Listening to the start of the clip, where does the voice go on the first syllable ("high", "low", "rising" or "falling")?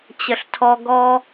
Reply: low